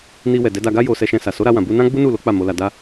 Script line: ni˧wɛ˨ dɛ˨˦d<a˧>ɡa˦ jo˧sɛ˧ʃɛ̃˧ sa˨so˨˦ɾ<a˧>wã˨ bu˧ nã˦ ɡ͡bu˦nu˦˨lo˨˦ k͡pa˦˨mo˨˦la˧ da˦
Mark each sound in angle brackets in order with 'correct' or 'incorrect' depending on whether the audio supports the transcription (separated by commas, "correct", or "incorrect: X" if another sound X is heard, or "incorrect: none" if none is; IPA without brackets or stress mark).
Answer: correct, correct